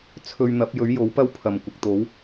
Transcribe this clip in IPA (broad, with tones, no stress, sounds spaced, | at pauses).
t͡sʰ ɵ˧ ɥ n̪ ɐ˨˥ p̚ j ɵ˨˥ ɥ j o˨˥ w p ɐ˥ w pʰ ɐ˨˩ m kʷ ɪ˨ k̚ t̪ o˨˥ w